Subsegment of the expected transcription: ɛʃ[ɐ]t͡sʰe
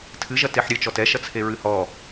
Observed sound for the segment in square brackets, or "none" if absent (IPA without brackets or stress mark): ɐ